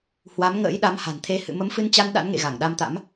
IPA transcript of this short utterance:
h w a˨˦ m ŋ ə̰ː˧˥ j ɗ a˨˦ m h a̤˨˩ n t̪ʰ e˧ h ɨ̰˧˨ m ə˨˦ m f ɨ˧ n t͡ɕ a˧ n ɗ a̰˧˥ n ŋ ḛ˧˨ ɣ a˧˩ ŋ ɗ a˧ m t̪ a̰˧˥ m

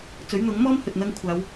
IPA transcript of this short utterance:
t͡s ɵ˨˥ ɥ n̪ ʊ˨˥ ŋ m ɔː˥ m h ɵ˨ t̚ n̪ ɐ˧ ŋ kʷʰ aː˨˧ w

